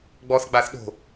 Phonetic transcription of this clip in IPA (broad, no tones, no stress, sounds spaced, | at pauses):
ɡ͡b ɔ θ ɡ͡b a θ ɗ o̤